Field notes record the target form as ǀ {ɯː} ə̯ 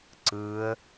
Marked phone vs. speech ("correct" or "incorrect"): correct